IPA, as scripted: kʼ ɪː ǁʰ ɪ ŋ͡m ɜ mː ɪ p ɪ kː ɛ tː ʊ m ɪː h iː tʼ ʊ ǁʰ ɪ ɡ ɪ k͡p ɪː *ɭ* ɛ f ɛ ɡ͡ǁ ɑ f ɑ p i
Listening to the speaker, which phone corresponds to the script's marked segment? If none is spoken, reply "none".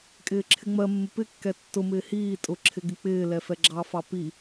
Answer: l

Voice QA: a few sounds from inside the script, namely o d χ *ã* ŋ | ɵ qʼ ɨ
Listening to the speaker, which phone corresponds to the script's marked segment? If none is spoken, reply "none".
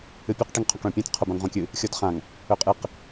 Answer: ã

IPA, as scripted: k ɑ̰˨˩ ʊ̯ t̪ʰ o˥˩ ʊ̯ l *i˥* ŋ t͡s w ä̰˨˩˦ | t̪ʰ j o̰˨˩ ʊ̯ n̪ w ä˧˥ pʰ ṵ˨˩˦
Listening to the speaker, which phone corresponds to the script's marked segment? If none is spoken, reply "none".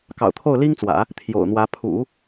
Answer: i˥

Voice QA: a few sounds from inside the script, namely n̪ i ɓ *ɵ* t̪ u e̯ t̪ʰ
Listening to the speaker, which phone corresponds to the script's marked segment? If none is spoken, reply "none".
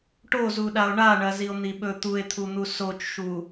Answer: ɵ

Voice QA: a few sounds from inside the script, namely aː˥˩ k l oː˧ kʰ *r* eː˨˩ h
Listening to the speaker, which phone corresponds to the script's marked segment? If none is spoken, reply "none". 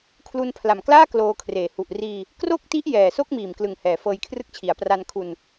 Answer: r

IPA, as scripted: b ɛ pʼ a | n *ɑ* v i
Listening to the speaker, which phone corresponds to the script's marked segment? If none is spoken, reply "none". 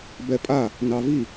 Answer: ɑ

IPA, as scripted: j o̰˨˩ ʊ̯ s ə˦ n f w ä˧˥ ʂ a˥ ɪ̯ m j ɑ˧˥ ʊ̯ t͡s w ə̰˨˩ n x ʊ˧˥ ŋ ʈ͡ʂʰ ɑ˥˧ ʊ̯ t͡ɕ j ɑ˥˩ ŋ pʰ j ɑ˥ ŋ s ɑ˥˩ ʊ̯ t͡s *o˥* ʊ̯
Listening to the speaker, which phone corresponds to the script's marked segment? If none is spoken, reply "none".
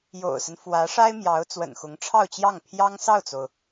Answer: o˩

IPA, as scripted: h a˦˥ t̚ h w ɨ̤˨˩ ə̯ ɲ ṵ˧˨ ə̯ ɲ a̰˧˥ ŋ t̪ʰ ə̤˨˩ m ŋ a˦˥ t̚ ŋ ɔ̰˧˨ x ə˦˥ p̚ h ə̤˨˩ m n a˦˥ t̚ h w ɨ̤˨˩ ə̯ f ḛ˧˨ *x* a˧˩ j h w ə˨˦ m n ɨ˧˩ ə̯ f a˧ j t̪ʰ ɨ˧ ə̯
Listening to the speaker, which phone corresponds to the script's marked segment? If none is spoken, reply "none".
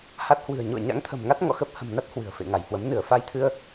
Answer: ŋ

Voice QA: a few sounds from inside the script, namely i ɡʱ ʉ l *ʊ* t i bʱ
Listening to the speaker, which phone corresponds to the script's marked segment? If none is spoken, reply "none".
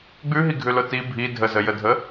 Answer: ʊ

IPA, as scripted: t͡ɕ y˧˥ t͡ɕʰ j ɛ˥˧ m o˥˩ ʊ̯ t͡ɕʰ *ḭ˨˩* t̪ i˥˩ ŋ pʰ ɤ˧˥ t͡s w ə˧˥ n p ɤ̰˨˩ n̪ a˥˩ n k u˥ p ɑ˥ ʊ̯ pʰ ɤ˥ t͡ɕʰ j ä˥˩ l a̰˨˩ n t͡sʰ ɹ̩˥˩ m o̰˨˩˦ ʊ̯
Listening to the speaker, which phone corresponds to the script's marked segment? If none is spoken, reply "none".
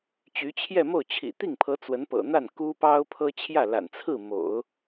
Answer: ḭ˨˩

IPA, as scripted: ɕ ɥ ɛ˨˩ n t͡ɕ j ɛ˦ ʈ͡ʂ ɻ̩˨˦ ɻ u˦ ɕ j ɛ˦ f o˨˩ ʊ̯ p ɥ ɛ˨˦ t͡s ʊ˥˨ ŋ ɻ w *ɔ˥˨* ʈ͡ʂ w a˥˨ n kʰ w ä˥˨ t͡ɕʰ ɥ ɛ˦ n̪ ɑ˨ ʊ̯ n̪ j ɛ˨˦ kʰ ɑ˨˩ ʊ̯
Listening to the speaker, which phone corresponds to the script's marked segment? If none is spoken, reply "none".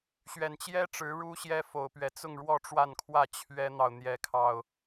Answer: ɔ˥˨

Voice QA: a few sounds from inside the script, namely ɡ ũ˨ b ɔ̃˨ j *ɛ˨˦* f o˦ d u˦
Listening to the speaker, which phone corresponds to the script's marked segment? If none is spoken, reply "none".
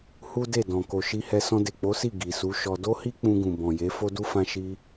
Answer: e˨˦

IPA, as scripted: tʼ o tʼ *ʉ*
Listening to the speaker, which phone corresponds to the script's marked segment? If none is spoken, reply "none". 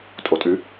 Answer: ʉ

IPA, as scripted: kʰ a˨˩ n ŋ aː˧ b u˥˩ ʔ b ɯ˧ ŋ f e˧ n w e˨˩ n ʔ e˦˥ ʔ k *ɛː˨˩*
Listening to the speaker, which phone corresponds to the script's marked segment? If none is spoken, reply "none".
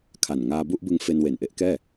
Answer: ɛː˥˩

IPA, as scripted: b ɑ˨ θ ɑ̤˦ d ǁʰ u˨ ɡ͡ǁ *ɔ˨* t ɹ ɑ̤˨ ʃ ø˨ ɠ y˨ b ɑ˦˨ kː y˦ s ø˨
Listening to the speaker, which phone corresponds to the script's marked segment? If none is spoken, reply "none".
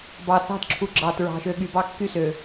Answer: ɑ˨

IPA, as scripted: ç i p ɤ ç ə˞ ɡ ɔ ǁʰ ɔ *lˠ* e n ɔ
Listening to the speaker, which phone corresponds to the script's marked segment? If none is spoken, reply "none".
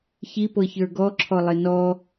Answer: lˠ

